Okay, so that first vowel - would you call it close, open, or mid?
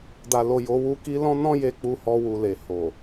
open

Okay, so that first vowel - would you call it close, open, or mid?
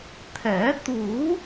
mid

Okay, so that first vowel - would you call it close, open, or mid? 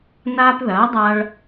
open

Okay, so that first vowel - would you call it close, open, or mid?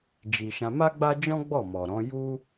close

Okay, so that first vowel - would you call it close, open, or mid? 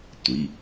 close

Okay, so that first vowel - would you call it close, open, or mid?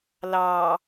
open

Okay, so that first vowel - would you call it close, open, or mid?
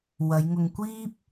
open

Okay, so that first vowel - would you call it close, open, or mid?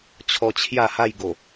mid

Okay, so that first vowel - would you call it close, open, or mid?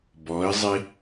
mid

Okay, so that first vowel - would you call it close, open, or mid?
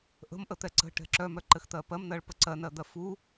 mid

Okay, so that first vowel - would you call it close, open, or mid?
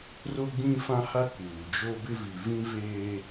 mid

